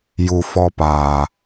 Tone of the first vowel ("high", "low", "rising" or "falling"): low